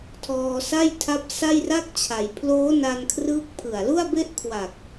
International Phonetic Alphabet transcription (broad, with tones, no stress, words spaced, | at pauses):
tʰɔː˧sa˥˩jtʰa˦˥p̚ sa˥˩jra˥˩k̚t͡ɕʰa˩˦j pʰloː˦˥ na˧nkʰrɯː˦˥k̚pʰɯ˨˩a̯ lu˥˩a̯be˥˩ʔkʰwa˨˩k̚